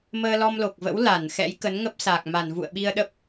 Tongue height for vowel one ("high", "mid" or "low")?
mid